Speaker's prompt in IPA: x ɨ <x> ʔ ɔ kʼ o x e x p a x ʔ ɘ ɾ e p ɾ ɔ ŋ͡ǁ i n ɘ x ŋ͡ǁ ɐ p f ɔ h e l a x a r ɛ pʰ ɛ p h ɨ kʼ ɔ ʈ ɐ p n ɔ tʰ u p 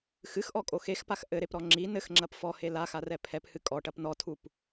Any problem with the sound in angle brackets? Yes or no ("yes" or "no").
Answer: no